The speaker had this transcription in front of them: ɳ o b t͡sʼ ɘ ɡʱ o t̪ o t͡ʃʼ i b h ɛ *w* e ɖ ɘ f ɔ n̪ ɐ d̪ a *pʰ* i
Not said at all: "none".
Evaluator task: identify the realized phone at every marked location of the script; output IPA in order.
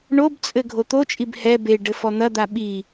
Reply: b, ɓ

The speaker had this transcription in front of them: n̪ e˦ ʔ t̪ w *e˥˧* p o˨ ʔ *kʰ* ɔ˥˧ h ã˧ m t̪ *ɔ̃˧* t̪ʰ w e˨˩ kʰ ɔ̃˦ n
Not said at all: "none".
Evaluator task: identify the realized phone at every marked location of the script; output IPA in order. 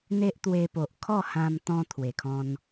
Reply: e˧, kʰ, ɔ̃˧

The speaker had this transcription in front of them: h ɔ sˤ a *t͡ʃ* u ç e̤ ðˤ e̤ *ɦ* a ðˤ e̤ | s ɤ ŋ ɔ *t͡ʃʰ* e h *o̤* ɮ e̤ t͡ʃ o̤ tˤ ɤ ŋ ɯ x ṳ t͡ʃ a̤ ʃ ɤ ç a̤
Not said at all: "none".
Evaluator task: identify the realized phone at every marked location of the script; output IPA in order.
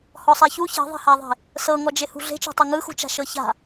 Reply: ç, h, d͡ʒ, ṳ

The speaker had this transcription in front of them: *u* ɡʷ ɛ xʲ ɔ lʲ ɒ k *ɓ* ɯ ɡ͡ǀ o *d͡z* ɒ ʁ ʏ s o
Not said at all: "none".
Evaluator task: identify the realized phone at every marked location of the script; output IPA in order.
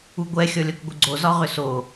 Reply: u, ɡʷ, z

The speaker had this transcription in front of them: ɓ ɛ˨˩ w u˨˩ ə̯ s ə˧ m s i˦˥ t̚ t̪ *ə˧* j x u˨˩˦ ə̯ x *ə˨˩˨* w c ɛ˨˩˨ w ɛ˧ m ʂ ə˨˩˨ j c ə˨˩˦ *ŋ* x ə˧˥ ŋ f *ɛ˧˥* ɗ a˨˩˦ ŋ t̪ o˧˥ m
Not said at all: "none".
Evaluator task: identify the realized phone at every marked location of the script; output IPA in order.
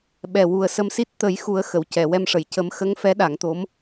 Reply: ə˨˩˦, ə˨˩˨, m, ɛ˧˥

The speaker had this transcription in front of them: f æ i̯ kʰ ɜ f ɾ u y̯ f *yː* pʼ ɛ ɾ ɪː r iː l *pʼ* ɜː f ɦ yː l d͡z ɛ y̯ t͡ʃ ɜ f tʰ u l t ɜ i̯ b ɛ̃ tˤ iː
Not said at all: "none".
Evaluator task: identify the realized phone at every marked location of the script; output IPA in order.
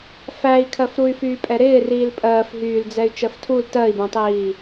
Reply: yː, pʼ

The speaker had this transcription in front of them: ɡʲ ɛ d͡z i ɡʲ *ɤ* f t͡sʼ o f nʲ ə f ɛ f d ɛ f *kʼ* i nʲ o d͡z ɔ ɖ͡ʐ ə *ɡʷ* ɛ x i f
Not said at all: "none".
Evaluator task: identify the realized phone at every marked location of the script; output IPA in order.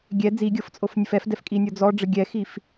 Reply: ɤ, kʼ, ɡʲ

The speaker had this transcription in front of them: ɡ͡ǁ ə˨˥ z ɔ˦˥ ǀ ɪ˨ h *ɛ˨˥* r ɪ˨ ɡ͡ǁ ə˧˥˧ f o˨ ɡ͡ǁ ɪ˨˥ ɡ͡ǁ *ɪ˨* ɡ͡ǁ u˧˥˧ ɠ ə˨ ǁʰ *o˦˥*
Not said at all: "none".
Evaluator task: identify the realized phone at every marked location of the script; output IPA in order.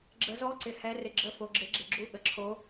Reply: ɛ˨˥, ɪ˨, o˦˥

